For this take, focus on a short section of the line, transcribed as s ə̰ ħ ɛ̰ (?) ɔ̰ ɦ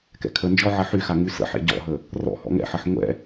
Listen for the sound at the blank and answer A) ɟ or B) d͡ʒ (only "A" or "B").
A